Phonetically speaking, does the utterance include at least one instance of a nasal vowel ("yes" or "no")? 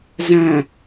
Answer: yes